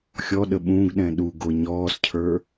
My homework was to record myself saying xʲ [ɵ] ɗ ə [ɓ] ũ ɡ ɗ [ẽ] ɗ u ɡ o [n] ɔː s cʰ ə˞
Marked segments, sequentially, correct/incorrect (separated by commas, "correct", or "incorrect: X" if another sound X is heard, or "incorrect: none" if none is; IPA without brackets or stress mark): incorrect: ɔ, correct, incorrect: ɛ̃, incorrect: ɲ